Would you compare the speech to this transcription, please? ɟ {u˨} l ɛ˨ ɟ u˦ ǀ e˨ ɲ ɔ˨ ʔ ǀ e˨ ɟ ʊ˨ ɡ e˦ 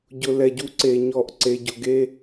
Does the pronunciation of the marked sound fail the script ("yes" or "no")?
yes